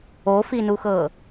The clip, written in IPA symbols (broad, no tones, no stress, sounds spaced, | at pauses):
o f i n u x ɤ